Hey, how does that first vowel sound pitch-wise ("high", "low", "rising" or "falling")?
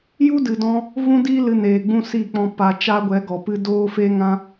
high